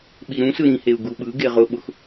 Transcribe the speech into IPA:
ɓ i ɾ ũ s ɯ ɾ ĩ h e u̯ ɡ u ɓ ɯ ɡ e ʁ ʊ ɓ ʊ x

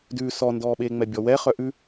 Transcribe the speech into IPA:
d ʉː s ɔ n d ɔː ɓ eː ŋ͡m ɛ bʲ ɔ w ɛ χ œ ʔ ʉ

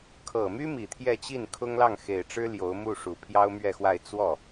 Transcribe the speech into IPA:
kʰ ɤ˨˩ m y˥ m i˨˩ t̪ʰ j ɛ˥˧ t͡ɕ i˥˩ n kʰ ʊ˥ ŋ l ɑ˥˩ ŋ x e˨˩ ɪ̯ ʈ͡ʂ ɻ̩˥ l j o˧˥ ʊ̯ m u˥˩ ʂ u˨˩ pʰ j ɑ˥ ʊ̯ m ɥ ɛ˥˧ x w a˥˧ ɪ̯ t͡s w ɔ˥˩

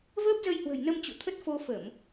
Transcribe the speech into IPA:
v əː˦˥ p̚ z ə˧ j h w ə̤˨˩ j n ə˧ m t͡ɕ ṵ˧˨ t̪ʰ ə˦˥ t̚ f o˧ f ə˧˩˨ m

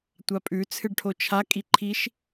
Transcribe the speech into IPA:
tʷ a pʼ ʉ t͡sʰ ɨ ɖ ʈʰ o t͡ʃʰ a kʼ i ǃʰ i ʃ

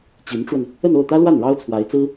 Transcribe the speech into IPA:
t͡ɕ i˧˥ n ʈ͡ʂ w ə˧ n | ə˥˧ n o˥˩ ʊ̯ t̪ ä˥ l w a˥˩ n ɻ ɑ˥ ʊ̯ t͡sʰ w a˧˥ ɪ̯ t͡s ɹ̩˥

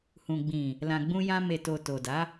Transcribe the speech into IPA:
h ũ˨ ɡ͡b ĩ˨ | l ã˨ ɡ͡b ũ˧ j ã˧ m e˨ t o˨ t o˨ d a˨˦

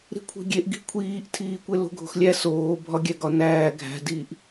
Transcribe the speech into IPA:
ɾ i̤ kʷʰ i̤ ɡʲ e ʔ ɡ i̤ kʷʰ iː ʔ tʰ iː kʷ e l o̤ ɡʱ o̤ x lʲ æ s oː bʱ ɒ ɡʲ æ ɡ ɒ n æː ɡʱ æ̤ d iː ʔ

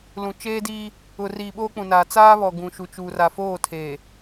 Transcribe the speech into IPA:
l ũ˨ t͡ʃ eː˦ d iː˦ | ʊ˨ r iː˨ ɓ oː˦ k͡p ũ˨ n aː˨ t͡s aː˦ β ɔ˨ ɡ ũ˨ ʃ u˨ t͡ʃ u˨ r a˨ f oː˦˨ tʰ eː˨

